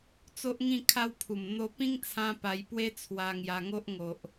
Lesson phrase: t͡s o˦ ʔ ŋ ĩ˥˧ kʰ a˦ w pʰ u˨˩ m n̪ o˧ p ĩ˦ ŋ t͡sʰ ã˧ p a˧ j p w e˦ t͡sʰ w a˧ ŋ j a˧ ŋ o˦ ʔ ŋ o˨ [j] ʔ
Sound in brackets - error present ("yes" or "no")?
yes